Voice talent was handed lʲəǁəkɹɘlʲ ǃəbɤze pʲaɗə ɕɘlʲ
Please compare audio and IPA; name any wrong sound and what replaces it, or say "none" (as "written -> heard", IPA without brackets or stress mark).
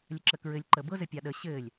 e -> ɘ